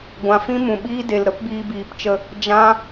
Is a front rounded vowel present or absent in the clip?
absent